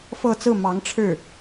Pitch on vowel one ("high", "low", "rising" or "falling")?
falling